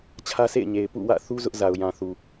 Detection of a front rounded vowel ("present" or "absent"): absent